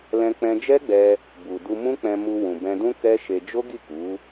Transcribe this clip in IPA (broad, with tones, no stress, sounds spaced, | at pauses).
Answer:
l ɛ̃˧ k͡p ɛ̃˧ d͡ʒ ɛ˦ ɡ͡b ɛ˧ | b u˨ d u˧ m ũ˦ k͡p ɛ̃˧ m u˧ w ũ˨ b ɛ̃˧ d ũ˦ k ɛ˦ ʃ e˧ d͡ʒ o˦ ɡ i˦˨ k u˨˦